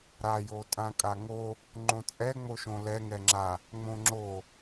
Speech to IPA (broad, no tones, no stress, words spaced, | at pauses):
ɾa jotʼãkʼaŋo | ŋ͡ǃõt͡sʼɛ ŋ͡moʃõlɛ ŋɛŋ͡ǁa | ŋ͡mõŋ͡ǁo